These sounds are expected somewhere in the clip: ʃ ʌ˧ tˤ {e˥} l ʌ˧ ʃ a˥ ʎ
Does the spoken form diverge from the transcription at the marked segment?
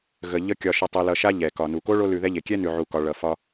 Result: yes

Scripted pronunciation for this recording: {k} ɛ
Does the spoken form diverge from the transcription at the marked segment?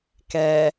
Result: no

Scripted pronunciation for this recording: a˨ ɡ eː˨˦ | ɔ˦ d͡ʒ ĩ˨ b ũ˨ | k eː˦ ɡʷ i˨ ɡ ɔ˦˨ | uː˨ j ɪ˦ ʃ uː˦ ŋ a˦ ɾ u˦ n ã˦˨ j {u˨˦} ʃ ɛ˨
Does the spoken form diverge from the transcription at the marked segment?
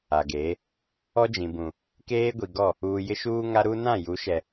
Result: no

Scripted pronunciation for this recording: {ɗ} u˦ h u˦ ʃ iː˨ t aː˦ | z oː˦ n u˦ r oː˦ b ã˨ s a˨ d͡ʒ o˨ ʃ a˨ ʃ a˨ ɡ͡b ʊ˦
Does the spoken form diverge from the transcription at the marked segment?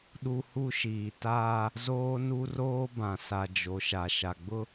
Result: no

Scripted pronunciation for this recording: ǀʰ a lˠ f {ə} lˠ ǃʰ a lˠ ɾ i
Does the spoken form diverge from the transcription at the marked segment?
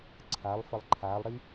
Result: no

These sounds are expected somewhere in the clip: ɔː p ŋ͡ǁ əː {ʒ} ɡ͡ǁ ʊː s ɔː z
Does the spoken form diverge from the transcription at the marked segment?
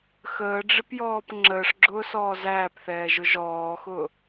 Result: yes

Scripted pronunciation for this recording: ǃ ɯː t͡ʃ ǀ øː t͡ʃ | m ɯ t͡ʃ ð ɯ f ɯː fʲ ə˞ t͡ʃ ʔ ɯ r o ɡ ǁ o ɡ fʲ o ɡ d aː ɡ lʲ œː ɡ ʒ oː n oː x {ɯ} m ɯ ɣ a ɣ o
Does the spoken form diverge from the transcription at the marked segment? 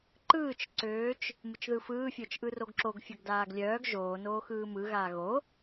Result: yes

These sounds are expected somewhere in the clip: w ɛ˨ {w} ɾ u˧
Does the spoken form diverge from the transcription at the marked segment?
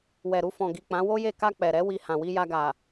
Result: yes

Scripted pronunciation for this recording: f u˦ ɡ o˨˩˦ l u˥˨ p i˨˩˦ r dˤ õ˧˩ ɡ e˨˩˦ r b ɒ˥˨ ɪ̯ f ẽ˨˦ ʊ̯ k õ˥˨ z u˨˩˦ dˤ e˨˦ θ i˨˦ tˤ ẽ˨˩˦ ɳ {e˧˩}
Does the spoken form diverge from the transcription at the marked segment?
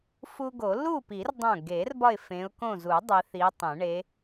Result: yes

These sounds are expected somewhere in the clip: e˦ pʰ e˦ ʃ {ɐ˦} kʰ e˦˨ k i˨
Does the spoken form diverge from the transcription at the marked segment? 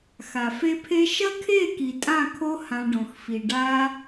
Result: no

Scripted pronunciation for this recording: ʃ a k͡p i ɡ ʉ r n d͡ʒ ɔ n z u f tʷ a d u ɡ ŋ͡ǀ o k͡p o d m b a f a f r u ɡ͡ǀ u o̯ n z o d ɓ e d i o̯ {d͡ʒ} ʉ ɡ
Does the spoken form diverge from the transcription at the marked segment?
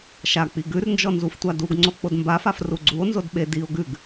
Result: yes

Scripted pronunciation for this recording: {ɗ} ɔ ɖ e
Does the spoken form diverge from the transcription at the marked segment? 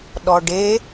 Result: no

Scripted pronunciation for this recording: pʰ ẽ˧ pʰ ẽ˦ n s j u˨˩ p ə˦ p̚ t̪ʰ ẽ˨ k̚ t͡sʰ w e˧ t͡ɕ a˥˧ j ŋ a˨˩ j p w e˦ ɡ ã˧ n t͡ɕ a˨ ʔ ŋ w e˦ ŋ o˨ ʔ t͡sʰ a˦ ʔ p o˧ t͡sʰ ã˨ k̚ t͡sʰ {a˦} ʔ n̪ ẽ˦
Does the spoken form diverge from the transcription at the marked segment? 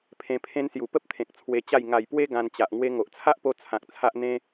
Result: no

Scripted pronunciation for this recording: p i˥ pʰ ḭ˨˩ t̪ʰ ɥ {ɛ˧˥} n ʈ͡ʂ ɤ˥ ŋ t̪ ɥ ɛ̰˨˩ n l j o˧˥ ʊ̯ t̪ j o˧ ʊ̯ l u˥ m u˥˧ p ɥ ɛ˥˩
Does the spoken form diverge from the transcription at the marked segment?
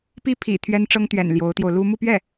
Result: yes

